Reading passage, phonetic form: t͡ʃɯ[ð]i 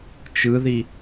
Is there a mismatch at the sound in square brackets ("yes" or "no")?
no